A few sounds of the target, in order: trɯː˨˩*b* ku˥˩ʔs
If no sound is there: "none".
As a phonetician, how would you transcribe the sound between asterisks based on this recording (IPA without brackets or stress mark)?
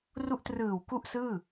w